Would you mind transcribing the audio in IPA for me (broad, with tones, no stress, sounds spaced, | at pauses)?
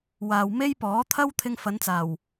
w aː˨ w m e˥ j p ɔː˨˥ t̪ʰ ɐ˥ w t̪ʰ ɪ˧ ŋ f ɐ˨˧ n t͡s aː˨˩ w